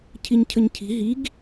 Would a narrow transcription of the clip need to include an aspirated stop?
yes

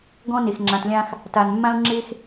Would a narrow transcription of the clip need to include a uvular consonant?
no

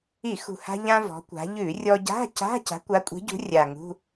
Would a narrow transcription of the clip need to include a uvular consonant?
no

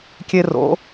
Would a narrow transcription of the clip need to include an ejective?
no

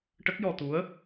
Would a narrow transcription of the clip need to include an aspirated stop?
no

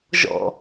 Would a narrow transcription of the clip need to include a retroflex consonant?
no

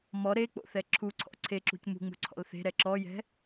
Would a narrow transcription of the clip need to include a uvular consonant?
no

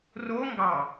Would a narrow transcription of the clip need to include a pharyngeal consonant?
no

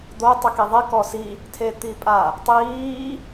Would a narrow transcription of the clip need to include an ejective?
yes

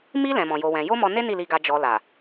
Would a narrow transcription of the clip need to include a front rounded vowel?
no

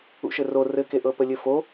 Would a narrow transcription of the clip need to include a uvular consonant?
no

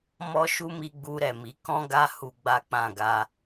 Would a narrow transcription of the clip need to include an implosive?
no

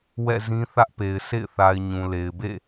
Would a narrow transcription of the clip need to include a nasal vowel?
yes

